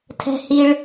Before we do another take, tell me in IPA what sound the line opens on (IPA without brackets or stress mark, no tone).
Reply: tʰ